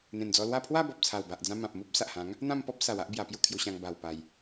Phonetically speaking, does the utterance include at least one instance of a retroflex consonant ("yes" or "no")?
no